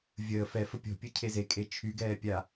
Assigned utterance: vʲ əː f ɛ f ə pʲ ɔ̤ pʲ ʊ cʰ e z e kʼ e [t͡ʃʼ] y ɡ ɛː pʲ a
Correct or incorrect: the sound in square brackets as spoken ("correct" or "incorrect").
incorrect